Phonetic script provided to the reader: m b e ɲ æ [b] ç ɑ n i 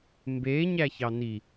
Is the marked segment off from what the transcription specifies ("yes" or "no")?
yes